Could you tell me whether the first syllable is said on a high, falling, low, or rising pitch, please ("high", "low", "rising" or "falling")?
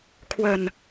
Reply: low